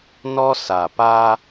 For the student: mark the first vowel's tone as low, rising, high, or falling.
high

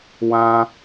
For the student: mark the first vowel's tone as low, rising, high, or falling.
high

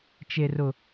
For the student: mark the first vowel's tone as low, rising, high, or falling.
low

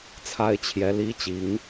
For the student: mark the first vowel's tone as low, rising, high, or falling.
high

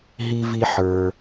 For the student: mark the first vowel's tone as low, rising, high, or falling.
high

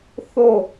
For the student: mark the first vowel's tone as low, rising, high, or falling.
falling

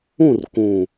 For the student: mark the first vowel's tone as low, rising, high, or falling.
falling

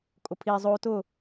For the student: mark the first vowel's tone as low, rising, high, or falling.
low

